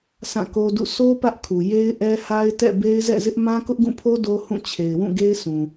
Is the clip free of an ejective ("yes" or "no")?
yes